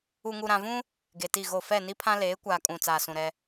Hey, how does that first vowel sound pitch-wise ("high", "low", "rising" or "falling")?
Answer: low